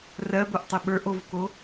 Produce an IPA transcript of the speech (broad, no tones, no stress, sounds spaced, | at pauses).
r ɜ b o ʔ tˤ ɘ ɓ ə˞ ʔ o v k o